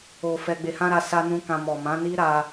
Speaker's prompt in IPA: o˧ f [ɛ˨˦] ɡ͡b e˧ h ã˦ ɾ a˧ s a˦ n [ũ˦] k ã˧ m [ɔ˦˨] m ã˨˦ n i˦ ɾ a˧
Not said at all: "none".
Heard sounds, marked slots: ɛ˧, ũ˦, ɔ˨

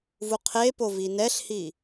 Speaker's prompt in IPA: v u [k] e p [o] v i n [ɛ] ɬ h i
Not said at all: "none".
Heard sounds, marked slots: qʰ, o, ɛ

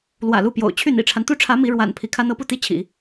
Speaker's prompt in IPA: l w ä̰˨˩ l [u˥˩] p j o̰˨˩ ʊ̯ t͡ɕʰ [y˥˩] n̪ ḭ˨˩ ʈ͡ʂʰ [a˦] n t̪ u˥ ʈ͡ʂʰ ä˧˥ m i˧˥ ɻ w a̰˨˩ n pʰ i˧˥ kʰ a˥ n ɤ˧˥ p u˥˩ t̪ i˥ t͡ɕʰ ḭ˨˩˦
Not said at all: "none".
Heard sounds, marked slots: u˥˩, y˥˩, a˦

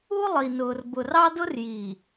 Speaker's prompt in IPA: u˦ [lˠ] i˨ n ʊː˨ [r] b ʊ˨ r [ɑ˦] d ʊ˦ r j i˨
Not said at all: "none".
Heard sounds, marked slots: lˠ, r, ɑ˦

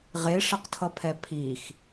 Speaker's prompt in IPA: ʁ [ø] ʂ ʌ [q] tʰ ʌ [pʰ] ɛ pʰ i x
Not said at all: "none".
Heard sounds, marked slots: e, q, pʰ

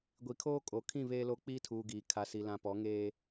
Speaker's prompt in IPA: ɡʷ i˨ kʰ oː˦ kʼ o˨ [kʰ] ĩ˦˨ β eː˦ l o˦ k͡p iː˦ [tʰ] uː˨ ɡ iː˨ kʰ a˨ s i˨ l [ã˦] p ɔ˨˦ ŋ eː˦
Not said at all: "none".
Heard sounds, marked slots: kʰ, tʰ, ã˨

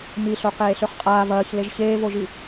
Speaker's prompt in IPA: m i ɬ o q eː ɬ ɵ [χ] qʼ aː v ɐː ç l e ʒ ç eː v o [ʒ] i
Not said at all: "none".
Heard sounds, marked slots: χ, ʒ

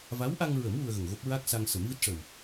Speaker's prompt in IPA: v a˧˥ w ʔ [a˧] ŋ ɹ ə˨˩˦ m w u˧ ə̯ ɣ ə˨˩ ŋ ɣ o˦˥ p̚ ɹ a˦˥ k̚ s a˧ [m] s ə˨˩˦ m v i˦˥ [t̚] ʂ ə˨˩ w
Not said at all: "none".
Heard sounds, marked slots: a˧, ŋ, t̚

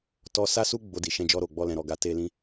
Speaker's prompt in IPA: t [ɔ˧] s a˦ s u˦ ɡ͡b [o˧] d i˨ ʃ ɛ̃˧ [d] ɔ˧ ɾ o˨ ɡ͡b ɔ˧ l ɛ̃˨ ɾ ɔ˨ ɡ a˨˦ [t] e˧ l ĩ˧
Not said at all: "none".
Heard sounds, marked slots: ɔ˧, o˧, d͡ʒ, t

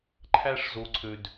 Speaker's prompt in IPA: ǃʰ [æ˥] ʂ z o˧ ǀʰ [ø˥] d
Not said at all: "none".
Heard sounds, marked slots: æ˥, ø˥

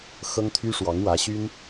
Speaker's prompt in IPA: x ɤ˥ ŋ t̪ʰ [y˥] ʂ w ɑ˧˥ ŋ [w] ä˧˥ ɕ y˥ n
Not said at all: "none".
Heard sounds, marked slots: y˥, w

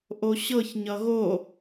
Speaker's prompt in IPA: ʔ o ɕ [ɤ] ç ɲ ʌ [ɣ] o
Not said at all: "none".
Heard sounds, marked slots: ɤ, ɣ

